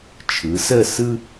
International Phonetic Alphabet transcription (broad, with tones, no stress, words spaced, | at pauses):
t͡ʃʰɯ˩˧sə˥˧sɯ˥